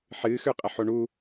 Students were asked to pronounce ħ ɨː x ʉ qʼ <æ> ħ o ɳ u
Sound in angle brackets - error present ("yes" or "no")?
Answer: yes